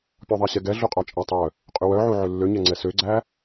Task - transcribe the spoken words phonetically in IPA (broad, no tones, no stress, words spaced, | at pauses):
pʲɔðˤæɕɛɡɛ ɮuqʼɑt͡ʃʼætˤœ | qʼywœʕu ʕølːøɲɛŋ͡ǀɛ søɡ͡ǀæ